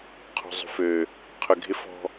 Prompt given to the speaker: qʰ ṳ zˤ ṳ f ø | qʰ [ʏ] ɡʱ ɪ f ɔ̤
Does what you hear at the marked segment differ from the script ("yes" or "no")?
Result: no